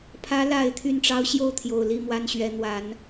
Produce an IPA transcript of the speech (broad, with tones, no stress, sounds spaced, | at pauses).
pʰ ä˧˥ l a˨˩ ɪ̯ t̪ʰ y˥˩ n ʈ͡ʂ ɑ˥ ʊ̯ ɕ j o˥˩ ʊ̯ t̪ʰ j o˨˩ ʊ̯ l i˥˩ m w a˥ n ɕ ɥ ɛ˧˥ n̪ w a˧˥ n